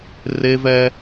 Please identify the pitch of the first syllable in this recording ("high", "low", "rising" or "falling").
high